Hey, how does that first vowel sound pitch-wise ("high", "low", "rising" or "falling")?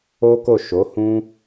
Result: high